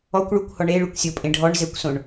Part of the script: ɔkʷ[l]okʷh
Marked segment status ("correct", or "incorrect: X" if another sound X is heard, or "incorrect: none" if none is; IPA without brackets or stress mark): incorrect: ɭ